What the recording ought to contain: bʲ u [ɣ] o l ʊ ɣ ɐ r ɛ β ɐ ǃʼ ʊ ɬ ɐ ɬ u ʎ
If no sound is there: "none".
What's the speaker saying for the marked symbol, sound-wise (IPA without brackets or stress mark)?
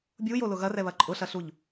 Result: j